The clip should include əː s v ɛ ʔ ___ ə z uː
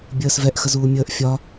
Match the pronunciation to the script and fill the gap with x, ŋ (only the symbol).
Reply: x